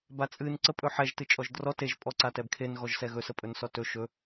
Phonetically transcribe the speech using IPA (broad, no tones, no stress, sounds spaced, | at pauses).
b a t͡sʼ ɨ n ǀ ə pʼ ɵ ħ ɛ ʒ t ɨ t͡ʃʼ ɔ ʒ d r ɔ t e ʒ pʼ ɔ ǀ a t ɛ b kʰ e n ɣ ɔ ʒ s ɛ ɣ ɵ s ə pʼ ɵ n s ɔ t ɵ ʃ ɵ